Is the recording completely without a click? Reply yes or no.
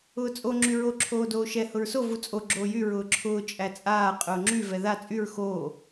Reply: no